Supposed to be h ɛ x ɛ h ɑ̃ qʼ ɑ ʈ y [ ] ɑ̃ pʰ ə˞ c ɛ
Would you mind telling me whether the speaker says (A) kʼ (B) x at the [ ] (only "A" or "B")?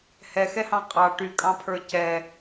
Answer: A